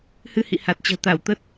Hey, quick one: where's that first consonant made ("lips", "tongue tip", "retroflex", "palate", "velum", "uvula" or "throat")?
throat